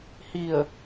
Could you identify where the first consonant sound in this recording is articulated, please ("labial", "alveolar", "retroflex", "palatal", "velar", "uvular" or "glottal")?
glottal